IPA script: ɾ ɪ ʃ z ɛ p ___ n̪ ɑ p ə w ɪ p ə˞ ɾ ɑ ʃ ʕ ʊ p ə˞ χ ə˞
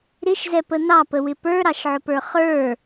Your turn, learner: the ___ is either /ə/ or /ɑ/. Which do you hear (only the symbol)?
ə